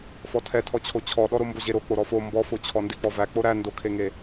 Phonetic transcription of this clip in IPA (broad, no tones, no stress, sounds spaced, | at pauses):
f ɔ tʰ ɛ tʰ ɔ t͡ɕʰ o t͡ɕʰ ɔ ɗ ɔ ɾ o m b o ʑ e ɾ o k͡p o ɾ ɔ f o m b ɔ f o t͡ɕʰ ɔ n d e k͡p ɔ v æ k͡p o ɾ æ n d o kʰ e ŋ e